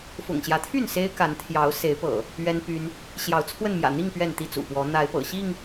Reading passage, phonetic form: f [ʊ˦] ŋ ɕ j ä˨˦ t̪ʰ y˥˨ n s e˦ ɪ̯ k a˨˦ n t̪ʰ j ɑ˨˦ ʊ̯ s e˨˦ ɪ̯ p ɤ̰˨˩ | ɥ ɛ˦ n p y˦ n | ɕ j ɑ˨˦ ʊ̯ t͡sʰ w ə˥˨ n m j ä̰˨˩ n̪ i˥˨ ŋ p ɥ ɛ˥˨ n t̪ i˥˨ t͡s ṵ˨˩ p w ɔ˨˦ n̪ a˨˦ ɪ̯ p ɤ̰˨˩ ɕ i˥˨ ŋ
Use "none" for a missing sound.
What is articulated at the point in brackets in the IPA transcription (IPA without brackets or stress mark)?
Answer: ʊ̰˨˩